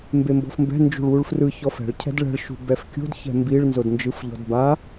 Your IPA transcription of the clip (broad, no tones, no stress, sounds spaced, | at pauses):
m b e m b ɔ̤ f m b ɛ̤ n d͡ʒ ṳ ɭ w u ɭ f r ɯ ç ɔ f ɛ̤ ɭ cʰ ɛ̤ d ɭ ɛ̤ ɭ ʃ ṳ b ɛ f kʲ o̤ d ç ɛ̤ m b i ɭ n z o d n d͡ʒ ɯ f ʎ ɔ̤ d b a